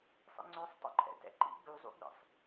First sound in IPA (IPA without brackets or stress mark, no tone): sˤ